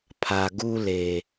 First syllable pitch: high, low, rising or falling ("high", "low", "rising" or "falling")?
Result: low